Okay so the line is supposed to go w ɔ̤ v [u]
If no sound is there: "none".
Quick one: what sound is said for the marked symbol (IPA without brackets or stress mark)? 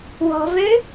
ø